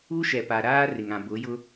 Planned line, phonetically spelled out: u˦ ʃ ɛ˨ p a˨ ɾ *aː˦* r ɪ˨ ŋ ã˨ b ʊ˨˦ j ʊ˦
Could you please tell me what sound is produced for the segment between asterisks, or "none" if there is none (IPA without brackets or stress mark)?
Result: aː˦